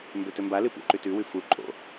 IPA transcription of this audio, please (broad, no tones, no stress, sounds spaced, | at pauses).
m b ɵ t ɵ m b a l ɨ p ṵ ǃ ʉ t ʉ w ʉ f u ǃʼ o̰